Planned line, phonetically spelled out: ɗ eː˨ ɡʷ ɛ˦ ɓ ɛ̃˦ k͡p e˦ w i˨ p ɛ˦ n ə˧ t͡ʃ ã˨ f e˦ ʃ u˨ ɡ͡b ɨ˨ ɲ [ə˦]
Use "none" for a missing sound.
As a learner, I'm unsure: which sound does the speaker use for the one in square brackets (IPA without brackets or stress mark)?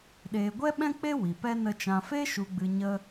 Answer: ə˦